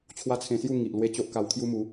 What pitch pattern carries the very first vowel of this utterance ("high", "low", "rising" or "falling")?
high